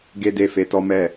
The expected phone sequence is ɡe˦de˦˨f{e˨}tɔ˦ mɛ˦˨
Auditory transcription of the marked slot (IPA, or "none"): e˧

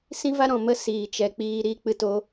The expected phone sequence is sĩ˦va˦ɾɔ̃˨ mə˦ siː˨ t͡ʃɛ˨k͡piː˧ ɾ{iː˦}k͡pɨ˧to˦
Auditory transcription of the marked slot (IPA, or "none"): iː˦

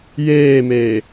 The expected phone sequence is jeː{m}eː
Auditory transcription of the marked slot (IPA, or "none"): m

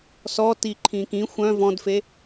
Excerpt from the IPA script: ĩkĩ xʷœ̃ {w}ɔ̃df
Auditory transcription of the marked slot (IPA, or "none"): v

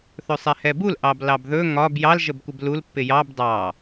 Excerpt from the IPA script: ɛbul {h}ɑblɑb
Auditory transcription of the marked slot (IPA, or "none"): ʔ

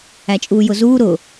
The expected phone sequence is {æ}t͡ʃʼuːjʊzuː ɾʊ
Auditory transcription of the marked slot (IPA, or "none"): æ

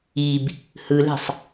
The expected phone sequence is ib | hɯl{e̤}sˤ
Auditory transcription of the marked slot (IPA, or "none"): e̤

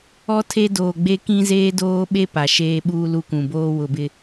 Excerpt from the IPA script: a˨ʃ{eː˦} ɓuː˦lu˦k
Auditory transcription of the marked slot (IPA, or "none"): eː˦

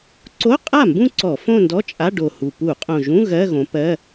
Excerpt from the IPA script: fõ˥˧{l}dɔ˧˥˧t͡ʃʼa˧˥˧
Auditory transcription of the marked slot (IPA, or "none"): n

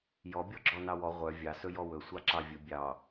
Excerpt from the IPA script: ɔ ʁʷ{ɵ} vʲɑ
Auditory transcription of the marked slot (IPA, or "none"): œ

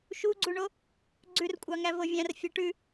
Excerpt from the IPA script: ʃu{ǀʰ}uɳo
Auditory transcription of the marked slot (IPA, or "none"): ɡ͡ǀ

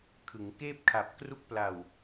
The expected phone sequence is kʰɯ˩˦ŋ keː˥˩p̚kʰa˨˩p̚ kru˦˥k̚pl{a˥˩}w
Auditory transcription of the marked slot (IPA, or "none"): a˨˩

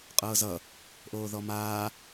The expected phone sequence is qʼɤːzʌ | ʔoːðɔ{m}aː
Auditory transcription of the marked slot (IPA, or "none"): m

